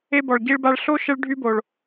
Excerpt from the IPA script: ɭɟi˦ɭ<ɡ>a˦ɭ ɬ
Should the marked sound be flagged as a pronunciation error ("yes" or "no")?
yes